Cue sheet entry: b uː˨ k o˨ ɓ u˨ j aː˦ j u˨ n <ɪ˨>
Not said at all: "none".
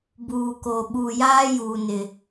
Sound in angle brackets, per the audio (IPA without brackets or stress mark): ɪ˨